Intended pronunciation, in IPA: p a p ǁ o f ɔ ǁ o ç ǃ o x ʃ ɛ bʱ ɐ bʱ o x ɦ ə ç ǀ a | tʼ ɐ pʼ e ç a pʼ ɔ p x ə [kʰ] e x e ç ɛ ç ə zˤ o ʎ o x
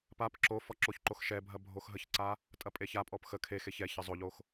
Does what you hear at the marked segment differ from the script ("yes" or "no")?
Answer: no